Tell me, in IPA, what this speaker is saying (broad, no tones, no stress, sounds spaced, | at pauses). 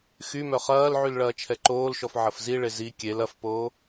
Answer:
x y m œ χ ɐː l ʕ y l ɭ ɐː t͡ʃʰ ɛ ǃ oː l ʃ ɔ f ʕ ɐ f z i ɭ e z i kʲ e l ɐ f p oː